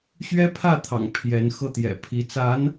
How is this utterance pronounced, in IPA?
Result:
ɕɥɛ˥pʰä˥˩t̪ʰɑ̰˨˩ŋ pʰjɛ˧˥nxɤ˥˩ t̪jɛ̰˨˩pʰi˧˥ t͡sa˧˥n

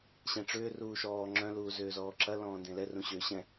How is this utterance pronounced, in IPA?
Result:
ɕɛ̃ʈ͡ʂʏː ruːʃɔː ŋ͡ǁœ̃ luːzʏːzɔːǁɐ lɔ̃ːndẽlɛ rũɕʏːɕɛ̃

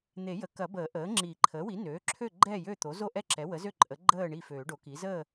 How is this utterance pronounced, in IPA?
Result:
n̪e˨˩˦jə˩˥kɐ˨˩˦bəː˨˩˦ ʔəː˩˥ŋ͡ǁi˨˩˦ ǃʰəː˩˥wi˩˥ nøː˩˥ǁʰø˥˨ ɡ͡ǃɛ˥˨ jø˥˨t̪o˩˥ zo˥˨ʔɛ˥˨ǁɛ˩˥ wə˩˥zø˥˨ ǃʼə˩˥ɡ͡ǃəː˥˨ ɳi˥˨føː˨˩˦ɖo˩˥ki˩˥ zəː˥˨

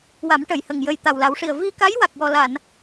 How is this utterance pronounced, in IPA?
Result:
wa˨˩˦mʈə˨˩˨jhə˨˩ŋ jə˨˩j t̪a˨˩wla˨˩˦wʂi˨˩ə̯ vi˧ka˧˥j wa˨˩k̚wɔ˨˩la˨˩˨n

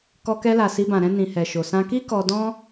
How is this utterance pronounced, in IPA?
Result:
kɔ˧kɛ˧la˨ si˧bã˨ɾɛ̃˧ nĩ˨ hɛ˨ʃo˨ sã˧ki˦ kɔ˧ dɔ̃˦

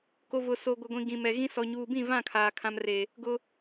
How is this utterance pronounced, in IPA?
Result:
ko˨ vʊ˨so˨ ɡʷɪ˨ɡʷĩ˨ ɡĩ˨mɛ˨ɣĩ˦ sɔ˨ ɲuː˨bĩ˦˨vã˦˨ kʰaː˨kʰã˦mre˨ | ɡʊ˦

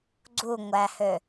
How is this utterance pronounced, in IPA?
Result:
ɡ͡ǀuŋʷæhø

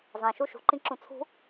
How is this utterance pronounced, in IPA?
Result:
zˤɛ̃ʃu ʃṳǃĩǁũ t͡sʰṳ

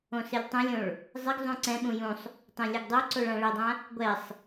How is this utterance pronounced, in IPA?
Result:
õsɪlʲtˤɛ̃lʲõɭ | zˤɪɡzˤũ ǀɛ̃ɓũ jũsˤ | tˤɛ̃lʲɛɡdˤoǀoɭ ãɭedˤã | ɡʷɛsˤ

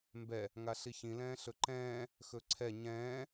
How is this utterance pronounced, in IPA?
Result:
mbɛ | ŋaɬiçĩ lɛ̃ːɬɵǃɛ̃ː | xɵǀʰɛ ɲɛ̃ː

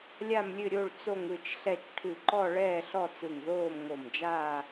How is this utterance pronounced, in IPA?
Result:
lʲa˥˧mlʲɨ˥˧ɾʲo˥˧ɭ t͡so˥˧ŋɯ˥˧t͡ʃɬɛ˥˧t͡ʃ ʈʰɨ˧˩ǃɔ˥˧ɭɛː˥˧ɬ ɔ˥˧ t͡sɯ˧˩ŋðoː˥˧mŋo˧˩md͡ʒaː˥˧

